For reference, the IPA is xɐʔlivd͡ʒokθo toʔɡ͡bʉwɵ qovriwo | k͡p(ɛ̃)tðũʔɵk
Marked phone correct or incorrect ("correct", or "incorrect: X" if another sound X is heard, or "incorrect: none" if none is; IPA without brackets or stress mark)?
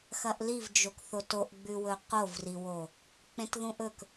incorrect: ẽ